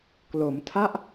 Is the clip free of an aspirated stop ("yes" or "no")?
no